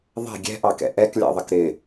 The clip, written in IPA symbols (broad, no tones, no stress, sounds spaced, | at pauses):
ðˤ ɛ̤ ɡʲ ɛ̤ ʔ ɑ k ɛ̰ ʔ ɛ k lʲ ɑ̰ ðˤ ə k ɾ ɪ